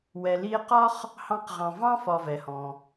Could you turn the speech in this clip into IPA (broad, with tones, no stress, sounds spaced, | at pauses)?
w ɛ˨ l i˦ e̯ q ɒ˥ χ | h ɑ̃˦ q ʁ ɑ̃˨ v ɑ̃˥ f ɒ˨ v ɛ˩ h ɔ̃˩